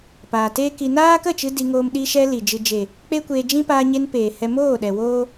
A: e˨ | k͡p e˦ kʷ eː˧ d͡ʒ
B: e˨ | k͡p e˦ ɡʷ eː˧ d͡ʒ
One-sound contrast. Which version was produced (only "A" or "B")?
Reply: A